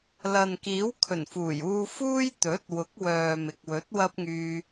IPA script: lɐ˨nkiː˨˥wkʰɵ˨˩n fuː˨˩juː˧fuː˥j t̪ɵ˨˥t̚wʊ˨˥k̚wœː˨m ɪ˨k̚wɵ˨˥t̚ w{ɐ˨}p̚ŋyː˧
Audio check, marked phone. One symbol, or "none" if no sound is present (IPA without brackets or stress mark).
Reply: ɐ˥